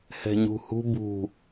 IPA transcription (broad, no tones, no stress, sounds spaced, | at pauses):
h ɛ̤ ɲ ṳ h ṳ b ṳ